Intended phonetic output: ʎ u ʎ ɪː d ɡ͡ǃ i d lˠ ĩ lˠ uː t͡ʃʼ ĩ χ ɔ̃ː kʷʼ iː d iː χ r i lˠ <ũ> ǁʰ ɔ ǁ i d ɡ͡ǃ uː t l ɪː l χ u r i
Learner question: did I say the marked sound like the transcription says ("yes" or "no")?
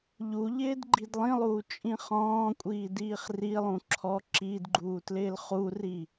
yes